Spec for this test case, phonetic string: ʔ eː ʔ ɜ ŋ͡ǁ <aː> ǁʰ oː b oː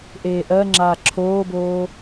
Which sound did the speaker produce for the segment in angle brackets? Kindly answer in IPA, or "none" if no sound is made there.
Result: aː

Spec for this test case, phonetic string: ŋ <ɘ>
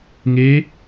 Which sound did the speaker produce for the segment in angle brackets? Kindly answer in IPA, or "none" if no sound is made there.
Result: e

